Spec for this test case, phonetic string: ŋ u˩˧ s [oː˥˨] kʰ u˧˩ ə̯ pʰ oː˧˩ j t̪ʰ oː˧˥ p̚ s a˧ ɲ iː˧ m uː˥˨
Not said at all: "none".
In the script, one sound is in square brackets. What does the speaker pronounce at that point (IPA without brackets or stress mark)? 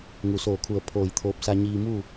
oː˧˩